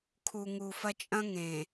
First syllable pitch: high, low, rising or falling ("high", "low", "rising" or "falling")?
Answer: low